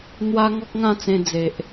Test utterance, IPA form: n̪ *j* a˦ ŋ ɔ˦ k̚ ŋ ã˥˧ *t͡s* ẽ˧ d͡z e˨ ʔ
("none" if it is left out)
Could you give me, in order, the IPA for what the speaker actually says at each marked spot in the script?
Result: w, t͡s

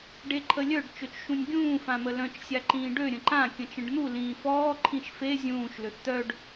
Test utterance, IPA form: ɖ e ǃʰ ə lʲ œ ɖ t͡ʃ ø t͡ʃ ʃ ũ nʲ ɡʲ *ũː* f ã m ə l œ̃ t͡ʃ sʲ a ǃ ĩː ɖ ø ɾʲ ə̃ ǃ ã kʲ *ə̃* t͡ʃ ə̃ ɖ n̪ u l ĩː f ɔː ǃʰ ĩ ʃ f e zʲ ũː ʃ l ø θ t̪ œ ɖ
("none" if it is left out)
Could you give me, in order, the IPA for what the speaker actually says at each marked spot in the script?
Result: ũː, ə̃

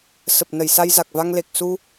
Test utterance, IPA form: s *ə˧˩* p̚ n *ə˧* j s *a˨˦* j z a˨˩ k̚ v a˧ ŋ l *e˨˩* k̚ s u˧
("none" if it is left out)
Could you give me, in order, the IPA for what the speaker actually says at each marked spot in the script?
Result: ə˨˩, ə˧˩, a˧, e˨˩

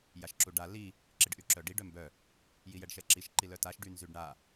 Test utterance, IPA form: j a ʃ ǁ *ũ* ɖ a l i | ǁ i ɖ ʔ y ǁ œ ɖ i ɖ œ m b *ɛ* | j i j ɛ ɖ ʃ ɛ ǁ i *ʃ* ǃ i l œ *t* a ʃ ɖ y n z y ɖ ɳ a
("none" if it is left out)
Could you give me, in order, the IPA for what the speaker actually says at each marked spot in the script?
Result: u, œ, ʃ, t

